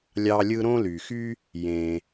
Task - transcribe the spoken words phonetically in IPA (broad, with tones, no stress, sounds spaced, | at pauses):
lʲ ɑ˦ lʲ ɯ˥ ɾ õ˥ l y˩ x y˥ | j ẽ˩